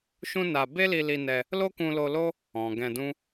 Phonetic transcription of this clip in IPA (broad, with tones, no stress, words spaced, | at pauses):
ʃũ˦na˧ be˦li˧li˧nɛ˧ | lo˦kũ˧lo˧lo˦ | ɔ̃˨ ɡɛ̃˧dũ˦